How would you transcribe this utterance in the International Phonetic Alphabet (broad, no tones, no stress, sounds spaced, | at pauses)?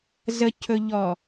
z ə cʰ ɵ ʎ ɔ